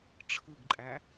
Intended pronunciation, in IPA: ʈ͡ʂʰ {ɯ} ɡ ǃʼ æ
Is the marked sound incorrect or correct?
correct